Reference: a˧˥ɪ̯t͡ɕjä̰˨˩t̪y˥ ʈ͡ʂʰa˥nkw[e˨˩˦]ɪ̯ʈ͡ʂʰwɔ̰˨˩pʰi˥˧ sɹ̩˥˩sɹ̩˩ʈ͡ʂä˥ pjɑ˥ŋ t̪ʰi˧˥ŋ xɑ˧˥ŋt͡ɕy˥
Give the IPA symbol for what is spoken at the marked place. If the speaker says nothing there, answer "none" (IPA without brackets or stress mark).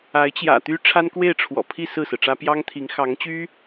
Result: e˥˩